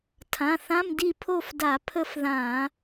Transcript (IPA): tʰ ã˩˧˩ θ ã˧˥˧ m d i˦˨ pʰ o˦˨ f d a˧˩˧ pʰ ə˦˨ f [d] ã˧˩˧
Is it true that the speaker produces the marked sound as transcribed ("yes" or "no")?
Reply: no